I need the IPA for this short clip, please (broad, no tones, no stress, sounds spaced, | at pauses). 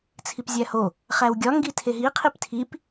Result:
t͡sʰ i p zʲ æ h o | χ æ w ɡʲ ɒ ŋ ɡ i tʰ e ɦ i qʰ i p tʰ i p